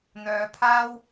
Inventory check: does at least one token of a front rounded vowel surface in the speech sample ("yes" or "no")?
yes